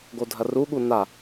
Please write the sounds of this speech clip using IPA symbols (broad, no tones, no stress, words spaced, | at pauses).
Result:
ɡodʱɐruɠu na